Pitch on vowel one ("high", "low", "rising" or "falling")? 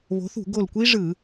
rising